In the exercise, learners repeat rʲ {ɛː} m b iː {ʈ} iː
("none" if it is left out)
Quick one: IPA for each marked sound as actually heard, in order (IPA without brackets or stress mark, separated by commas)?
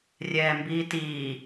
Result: ɛː, t